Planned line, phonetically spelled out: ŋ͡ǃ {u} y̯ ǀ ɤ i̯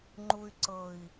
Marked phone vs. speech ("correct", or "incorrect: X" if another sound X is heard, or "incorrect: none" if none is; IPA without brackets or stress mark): correct